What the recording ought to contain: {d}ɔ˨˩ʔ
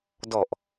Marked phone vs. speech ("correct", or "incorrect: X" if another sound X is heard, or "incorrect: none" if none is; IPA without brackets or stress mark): correct